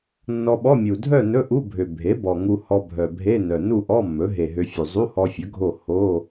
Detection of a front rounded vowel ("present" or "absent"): present